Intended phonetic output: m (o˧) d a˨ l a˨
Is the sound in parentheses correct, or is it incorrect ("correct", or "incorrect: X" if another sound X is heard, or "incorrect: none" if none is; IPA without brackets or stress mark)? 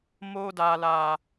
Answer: correct